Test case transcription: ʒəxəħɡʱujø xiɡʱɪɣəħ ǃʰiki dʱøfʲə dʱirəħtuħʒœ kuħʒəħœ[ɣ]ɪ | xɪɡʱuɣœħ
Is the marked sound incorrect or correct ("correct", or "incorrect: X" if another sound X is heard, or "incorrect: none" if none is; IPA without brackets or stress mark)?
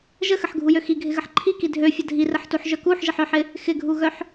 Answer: incorrect: ħ